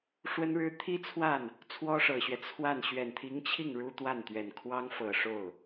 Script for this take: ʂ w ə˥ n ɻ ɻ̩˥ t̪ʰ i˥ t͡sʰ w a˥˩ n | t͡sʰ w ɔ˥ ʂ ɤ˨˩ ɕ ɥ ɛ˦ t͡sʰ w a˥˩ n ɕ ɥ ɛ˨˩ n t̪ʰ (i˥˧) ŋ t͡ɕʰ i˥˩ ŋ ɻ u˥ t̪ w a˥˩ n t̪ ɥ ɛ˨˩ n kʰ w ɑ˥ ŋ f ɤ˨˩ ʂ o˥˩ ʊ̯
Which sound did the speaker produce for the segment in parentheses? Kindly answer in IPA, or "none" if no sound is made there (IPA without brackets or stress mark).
i˧˥